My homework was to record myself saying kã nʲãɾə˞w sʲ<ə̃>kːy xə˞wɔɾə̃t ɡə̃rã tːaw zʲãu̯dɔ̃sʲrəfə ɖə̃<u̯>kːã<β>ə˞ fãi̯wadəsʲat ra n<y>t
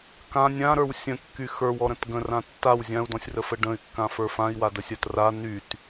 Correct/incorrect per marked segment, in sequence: correct, incorrect: y̯, incorrect: f, correct

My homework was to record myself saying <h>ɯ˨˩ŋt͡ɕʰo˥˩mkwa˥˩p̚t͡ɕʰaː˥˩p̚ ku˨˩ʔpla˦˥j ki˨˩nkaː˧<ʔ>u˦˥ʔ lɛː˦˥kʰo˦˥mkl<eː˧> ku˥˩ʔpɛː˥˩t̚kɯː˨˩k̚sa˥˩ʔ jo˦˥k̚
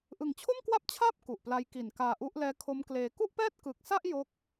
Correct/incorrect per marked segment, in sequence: incorrect: ʔ, correct, correct

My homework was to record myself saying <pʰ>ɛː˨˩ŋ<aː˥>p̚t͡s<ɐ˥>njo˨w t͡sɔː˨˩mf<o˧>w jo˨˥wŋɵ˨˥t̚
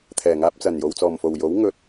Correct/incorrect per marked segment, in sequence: incorrect: t̪ʰ, incorrect: aː˧, incorrect: ɐ˨˩, incorrect: o˨˩

